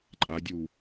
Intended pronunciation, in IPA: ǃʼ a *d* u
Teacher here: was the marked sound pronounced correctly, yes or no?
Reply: no